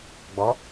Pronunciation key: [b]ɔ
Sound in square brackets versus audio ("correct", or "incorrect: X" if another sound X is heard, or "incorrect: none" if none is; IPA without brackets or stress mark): incorrect: ɡ͡b